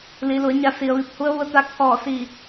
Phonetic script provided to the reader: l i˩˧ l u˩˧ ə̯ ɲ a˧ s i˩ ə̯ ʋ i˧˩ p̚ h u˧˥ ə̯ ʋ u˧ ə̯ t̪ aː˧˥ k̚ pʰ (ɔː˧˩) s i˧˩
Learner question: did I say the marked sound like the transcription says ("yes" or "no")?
yes